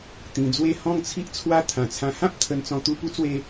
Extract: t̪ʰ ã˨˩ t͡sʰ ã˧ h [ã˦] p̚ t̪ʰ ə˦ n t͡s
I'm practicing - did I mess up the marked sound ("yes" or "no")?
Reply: no